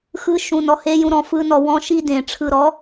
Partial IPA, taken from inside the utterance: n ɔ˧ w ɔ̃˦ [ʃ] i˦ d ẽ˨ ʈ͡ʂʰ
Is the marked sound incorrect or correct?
correct